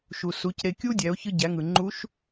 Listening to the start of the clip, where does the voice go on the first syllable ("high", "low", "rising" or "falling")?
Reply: low